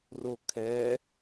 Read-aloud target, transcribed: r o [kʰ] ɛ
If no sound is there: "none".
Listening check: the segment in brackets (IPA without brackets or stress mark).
kʰ